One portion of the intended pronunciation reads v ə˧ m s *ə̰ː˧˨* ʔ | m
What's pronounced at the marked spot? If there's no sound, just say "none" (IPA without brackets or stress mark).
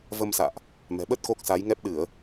a̰ː˧˨